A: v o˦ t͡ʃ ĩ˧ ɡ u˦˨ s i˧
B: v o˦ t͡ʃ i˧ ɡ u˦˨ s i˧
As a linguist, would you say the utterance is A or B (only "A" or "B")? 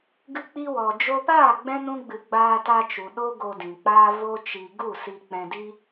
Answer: B